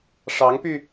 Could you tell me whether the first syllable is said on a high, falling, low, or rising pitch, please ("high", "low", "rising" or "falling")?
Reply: rising